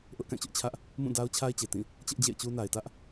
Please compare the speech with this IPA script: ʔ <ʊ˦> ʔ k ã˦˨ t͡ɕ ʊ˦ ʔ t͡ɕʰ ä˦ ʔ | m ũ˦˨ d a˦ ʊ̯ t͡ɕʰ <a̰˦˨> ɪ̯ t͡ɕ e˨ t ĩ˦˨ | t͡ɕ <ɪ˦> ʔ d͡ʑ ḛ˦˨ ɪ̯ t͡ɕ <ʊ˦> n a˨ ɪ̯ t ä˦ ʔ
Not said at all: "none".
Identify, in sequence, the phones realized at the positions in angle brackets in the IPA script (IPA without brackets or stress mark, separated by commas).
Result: ʊ˦, a˦, ɪ˦, u˦